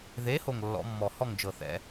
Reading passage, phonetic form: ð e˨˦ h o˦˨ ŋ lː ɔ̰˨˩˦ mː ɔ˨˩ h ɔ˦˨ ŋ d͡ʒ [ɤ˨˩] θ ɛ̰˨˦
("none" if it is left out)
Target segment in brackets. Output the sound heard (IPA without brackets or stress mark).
ɤ˨˩